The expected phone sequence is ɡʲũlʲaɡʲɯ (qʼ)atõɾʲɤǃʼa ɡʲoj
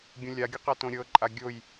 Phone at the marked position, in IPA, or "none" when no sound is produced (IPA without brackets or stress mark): q